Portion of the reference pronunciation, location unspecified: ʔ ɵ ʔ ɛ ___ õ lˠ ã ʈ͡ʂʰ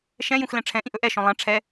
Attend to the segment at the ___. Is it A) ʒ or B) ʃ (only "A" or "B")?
B